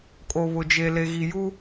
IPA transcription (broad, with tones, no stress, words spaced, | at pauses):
kʼo˨βʊ˨d͡ʒe˨ le˨ɣi˨ ju˦